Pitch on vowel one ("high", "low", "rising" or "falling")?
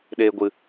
high